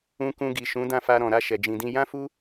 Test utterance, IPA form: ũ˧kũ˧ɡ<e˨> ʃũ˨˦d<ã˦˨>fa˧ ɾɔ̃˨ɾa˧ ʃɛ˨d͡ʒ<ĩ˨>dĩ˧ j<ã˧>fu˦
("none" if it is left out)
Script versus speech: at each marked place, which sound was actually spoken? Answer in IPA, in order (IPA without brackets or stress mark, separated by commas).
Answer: i˨, ã˦˨, ĩ˨, ã˦